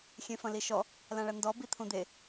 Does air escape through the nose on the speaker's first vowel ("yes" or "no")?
yes